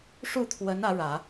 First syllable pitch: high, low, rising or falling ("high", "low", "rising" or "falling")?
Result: falling